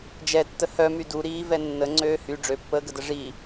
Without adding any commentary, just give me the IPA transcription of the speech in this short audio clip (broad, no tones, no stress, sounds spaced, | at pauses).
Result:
d͡ʒ ɛ tː ə h œ m y d u ɾ iː v ɛ nː ə ŋ͡ǀ øː h y ɖ͡ʐ ø pː əː ɡ ə d ə ʐ i